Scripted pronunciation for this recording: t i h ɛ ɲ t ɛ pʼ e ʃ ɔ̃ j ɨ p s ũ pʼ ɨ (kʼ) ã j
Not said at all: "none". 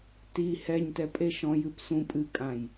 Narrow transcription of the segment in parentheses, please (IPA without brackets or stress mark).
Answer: kʼ